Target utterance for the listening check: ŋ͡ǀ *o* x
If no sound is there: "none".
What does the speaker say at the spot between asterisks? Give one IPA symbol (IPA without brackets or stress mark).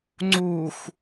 u